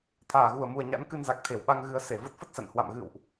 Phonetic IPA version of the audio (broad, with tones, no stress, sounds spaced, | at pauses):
t̪ʰ aː˧˩ ɣ u˧˩ ə̯ m u˨˩ ə̯ ɲ a̰˧˥ n k ɨ˧ n z a˨˩ k̚ t̪ʰ e˧˩ w ɓ a˧ ŋ ɣ ɨ˨˦ ə̯ s e˧˩ v ə˦˥ t̚ f ə˦˥ t̚ s a̰˧˨ n h w a̰˧˨ m ɣ ɨ̰˧˨ w ʔ